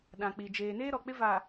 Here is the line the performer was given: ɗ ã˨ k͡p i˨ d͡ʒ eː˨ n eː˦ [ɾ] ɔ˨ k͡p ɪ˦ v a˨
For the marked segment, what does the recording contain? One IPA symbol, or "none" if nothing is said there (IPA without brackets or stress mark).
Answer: ɾ